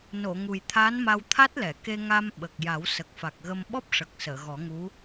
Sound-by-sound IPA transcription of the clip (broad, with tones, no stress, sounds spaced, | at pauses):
n o˨˩˨ ŋ u˨˩ j t̪ʰ aː˧˥ n m a˧ w t̪ʰ a˦˥ t̚ l ɛ˨˩˨ k e˧ ŋ a˧ m ɓ ə˨˩ k̚ j a˨˩˦ w s ə˨˩ k̚ f a˨˩ k̚ ɣ ə˧ m ɓ ɔ˦˥ p̚ ʂ ə˨˩ k̚ s əː˨˩˨ ɣ ɔ˨˩˦ ŋ u˧˥